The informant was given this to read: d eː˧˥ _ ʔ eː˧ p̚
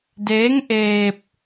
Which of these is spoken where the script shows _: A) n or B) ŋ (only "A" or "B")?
B